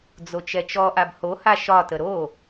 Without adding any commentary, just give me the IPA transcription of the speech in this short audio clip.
d͡z o t͡ʃ ɛ t͡ʃ ɔ ʔ a b h o h a ʃ ɒ t ə ɾ o

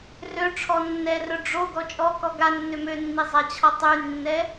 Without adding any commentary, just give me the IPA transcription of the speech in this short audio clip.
r ø ʈ͡ʂʰ ɔ nː ɛ r œ ɖ͡ʐ o ɡ ɔ t͡ʃʼ ɔ k ɔ ɡ a nː ø m ø nː i zˤ a t͡ɕʰ ɔ tˤ y nː ɛ

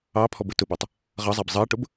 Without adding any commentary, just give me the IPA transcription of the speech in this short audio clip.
ɑ pʰ ɔ b ʊ t ʊ b æ tˤ | ʁ ʌ zˤ æ b zˤ ɜ ʈ ʊ b

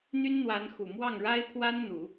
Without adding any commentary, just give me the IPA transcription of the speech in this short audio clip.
n̪ y˥ n n̪ w a˧˥ n x u˨˩ m w ɑ˥˩ ŋ ɻ a˥ ɪ̯ pʰ w a˥ n n̪ u˨˩˦

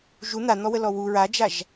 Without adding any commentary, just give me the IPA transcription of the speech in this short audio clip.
ʒ u n̪ a n̪ ɔ w ə l ɔ w u ɹ a d͡ʒ a ʒ

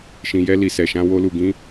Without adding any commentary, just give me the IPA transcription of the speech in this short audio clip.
ʃ ĩ˧ j ɛ˦ l i˧ s ɛ˧ ʃ ã˦ w o˦ l u˧ ɡ ĩ˦

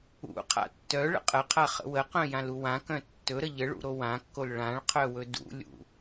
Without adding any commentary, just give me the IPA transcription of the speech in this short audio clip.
ṵ qʰ a̰ tː œ ɭ ə̰ qʼ ə qʰ a χ ə̰ w ə q œ̃ j ã l u w ã k œ̃ tː ɵ ɾ ə ʎ ə ɭ ṵ ɾ o w ã kː o l ɭ ã ɭ qʰ œ w ɵ d ṵ lʲ ṵ

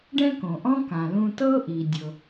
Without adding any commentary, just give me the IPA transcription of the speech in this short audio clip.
ɖ ɛ̃˥ k õ˩ ʔ ɔ̃˥ k ã˩ l ũ˧ t ɤ˥ ʔ i˩ dʲ ɤ˩

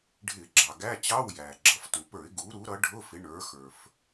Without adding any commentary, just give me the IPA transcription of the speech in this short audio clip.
ɖʱ ɪ˧˩˧ ɡ͡ǁ ɑ˩ ɡ æ˧˥˧ t͡ɕ ɑ˧˥˧ w j æ˩ ɡ͡ǁ ʌ˩˧ f t u˩ p ə˞˧˩˧ ɪ̯ ɡ u˩˧ ɾ u˩˧ ɾ ʌ˩˧ ɖʱ ʊ˧˥˧ f ɪ˩˧ ɳ ə˞˩˧ x ə˞˩ f

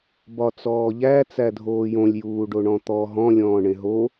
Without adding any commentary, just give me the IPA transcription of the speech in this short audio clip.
b ɒ t͡s ɔː ʎ æ t͡s æ dʱ oː j õ lʲ j uː ɖ o ɳ ɔ̃ t̪ ɔ ɦ ɔ̃ lʲ ɔ̃ː ɳ ẽ ɦ o

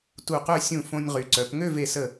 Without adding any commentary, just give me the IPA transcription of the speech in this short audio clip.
t u˧˩ q ø˥˧ sʲ ũ˧˩ f õ˧ nʲ ʁ y˩˧ ǀ œ˩˧ p ŋ ø˥˧ v e˧˩ s ə˧˩

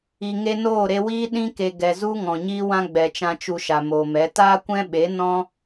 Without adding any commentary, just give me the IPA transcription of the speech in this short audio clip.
i˨ ŋ e˧ n oː˦˨ ɾ e˧ w iː˦ ɗ ĩ˧ k e˨ ɡ ɛ˨ z u˦ ŋ ɔ̃˨ ɲ iː˦ w ã˦ ɡ͡b ɛ˨ t͡ʃ ã˧ t͡ʃ u˧ ʃ a˨ m oː˨ m ɛ˨˦ t aː˦ kʷ ɛ̃˦ ɓ e˨˦ n ɔ̃˦

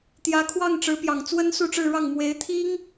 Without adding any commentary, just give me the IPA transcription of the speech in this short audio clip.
t̪ j ä˧˥ kʰ w ɑ˥˩ ŋ ʈ͡ʂ ɻ̩˧˥ p j ɑ˨˩ ŋ t͡s w ə˥ n s u˥˧ ʈ͡ʂ ɻ̩˥˧ ɻ ɑ˥˩ ŋ m w e˧˥ ɪ̯ t̪ʰ i˥ ŋ

